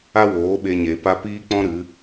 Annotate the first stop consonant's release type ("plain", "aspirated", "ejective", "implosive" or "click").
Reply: implosive